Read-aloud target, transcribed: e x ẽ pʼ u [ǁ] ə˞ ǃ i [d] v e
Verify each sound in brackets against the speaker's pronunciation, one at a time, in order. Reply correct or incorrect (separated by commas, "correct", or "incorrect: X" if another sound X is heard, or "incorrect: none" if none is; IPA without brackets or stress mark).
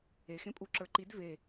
correct, correct